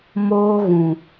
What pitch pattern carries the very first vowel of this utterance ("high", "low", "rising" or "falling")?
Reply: high